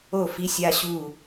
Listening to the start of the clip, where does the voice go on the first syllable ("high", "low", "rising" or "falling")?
falling